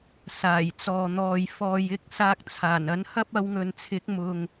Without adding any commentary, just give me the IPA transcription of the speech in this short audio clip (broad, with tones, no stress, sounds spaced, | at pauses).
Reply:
s aː˨˩ j t͡s ɔː˨ n̪ ɔː˨ j f ɔː˨ j ɪ˧ k̚ s aː˧ k̚ t͡sʰ aː˨˩ n ɐ˨˥ n h ɐ˥ p̚ ɐ˧ w ŋ ɵ˨ n t͡sʰ ɪ˨˥ k̚ m ʊ˨ ŋ